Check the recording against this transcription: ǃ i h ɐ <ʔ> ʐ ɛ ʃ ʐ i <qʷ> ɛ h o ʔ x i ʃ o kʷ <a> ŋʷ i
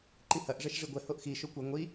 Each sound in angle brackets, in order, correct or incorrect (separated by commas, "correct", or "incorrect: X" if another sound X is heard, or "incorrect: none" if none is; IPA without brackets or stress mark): correct, incorrect: ɡʷ, incorrect: ɐ